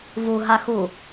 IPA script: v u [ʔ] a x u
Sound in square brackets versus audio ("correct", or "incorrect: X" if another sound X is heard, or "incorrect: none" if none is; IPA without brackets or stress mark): incorrect: ɦ